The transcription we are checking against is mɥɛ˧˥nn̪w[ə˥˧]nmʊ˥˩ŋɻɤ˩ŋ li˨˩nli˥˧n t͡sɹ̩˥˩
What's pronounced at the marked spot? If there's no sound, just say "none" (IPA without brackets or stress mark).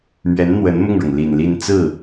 ə˧˥